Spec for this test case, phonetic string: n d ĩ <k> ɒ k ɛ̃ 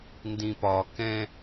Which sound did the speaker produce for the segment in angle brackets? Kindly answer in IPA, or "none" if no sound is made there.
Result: p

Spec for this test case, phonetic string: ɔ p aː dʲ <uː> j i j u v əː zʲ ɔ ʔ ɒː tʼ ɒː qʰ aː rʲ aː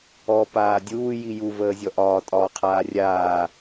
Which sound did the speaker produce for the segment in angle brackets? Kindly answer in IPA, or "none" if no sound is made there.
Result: uː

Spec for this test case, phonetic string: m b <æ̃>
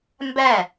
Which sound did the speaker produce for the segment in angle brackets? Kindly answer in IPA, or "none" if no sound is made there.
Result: æ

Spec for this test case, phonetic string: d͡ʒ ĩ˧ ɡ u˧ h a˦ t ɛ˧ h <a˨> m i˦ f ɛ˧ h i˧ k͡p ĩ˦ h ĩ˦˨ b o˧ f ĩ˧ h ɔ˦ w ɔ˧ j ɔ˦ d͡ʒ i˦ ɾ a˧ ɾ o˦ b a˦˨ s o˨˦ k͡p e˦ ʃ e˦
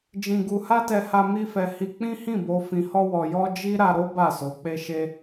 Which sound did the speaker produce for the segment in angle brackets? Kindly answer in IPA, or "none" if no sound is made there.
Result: a˧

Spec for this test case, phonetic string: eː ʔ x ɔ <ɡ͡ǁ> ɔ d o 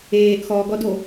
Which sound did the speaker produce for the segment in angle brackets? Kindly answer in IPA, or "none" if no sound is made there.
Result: ɡ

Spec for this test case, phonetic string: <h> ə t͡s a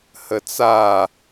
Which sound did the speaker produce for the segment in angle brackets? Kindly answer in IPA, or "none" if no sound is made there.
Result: h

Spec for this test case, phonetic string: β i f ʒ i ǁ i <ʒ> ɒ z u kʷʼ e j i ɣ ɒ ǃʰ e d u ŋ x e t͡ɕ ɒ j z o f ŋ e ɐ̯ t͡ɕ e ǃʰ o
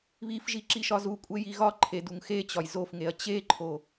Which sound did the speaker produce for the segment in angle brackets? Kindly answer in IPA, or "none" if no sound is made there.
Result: ʃ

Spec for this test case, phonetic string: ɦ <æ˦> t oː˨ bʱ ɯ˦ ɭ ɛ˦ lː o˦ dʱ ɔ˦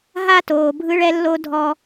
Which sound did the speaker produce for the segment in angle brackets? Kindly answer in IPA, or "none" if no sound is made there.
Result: a˦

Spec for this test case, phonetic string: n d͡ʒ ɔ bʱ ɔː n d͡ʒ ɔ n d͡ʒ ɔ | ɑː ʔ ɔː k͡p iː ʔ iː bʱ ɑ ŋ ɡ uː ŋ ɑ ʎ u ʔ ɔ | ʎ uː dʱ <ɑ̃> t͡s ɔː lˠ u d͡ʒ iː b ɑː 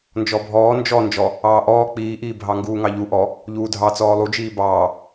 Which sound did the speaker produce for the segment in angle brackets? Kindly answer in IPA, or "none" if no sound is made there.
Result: ɑ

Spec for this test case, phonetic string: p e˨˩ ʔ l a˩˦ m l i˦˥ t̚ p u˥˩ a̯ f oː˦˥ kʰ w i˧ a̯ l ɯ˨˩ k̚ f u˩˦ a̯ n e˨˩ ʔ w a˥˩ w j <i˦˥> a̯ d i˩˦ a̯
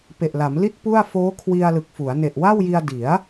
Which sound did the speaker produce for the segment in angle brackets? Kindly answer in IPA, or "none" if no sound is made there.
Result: i˧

